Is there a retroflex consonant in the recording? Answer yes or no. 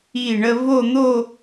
yes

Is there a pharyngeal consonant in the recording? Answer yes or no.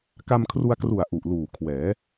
no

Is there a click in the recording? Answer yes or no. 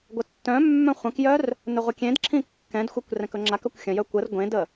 yes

